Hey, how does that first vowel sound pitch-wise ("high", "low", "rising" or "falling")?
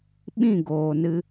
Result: falling